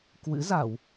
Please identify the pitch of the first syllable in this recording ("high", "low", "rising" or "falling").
rising